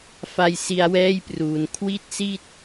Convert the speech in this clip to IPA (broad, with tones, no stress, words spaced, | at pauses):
fa˧j si˧a̯wɛː˥˩jpruː˩˦n kʰwi˥˩t̚si˥˩t̚